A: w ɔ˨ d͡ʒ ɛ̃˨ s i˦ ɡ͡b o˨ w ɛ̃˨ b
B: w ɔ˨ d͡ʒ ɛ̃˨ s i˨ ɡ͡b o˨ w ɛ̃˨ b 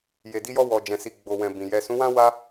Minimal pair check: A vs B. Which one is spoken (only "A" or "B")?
B